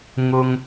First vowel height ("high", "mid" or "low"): high